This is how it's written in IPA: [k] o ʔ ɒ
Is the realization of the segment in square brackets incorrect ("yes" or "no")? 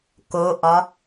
no